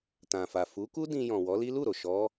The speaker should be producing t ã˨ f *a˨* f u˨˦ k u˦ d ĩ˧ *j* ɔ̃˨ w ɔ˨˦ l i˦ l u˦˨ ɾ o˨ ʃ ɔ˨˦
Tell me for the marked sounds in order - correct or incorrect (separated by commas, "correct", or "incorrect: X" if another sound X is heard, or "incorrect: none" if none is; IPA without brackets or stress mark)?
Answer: correct, correct